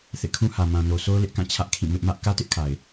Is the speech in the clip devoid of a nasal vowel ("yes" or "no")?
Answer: no